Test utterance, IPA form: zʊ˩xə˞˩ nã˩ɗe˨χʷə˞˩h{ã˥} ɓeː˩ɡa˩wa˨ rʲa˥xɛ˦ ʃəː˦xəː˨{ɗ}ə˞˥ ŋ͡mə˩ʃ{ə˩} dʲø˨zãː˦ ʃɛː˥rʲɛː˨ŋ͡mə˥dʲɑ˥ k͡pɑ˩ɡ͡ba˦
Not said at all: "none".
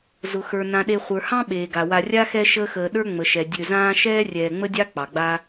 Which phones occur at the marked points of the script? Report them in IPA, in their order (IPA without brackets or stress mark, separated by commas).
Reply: ɑ̃˥, ɗ, ɛ˩